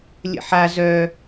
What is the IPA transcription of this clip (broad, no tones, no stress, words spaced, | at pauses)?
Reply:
lʲə̰ħa zœ